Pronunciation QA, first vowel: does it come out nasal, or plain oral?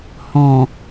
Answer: nasal